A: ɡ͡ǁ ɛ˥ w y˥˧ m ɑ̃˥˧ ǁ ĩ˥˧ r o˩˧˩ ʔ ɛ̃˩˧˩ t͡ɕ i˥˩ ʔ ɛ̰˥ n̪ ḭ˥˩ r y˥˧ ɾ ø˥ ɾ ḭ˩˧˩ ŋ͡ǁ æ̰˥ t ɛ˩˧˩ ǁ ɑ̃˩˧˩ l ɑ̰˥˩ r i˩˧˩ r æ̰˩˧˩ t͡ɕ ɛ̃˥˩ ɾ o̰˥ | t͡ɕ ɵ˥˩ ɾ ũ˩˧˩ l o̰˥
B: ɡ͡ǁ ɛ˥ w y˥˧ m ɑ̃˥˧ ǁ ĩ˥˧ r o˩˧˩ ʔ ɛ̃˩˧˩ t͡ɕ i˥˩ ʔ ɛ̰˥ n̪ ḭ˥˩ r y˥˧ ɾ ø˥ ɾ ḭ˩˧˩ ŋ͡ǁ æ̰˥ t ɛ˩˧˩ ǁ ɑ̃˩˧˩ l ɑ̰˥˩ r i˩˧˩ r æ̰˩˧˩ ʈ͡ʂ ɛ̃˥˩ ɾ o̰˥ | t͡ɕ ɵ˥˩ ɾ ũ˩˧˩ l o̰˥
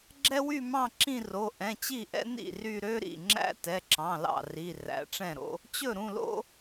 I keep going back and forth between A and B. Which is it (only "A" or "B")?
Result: B